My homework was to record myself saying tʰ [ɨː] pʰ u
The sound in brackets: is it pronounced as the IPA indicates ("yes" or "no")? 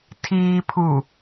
no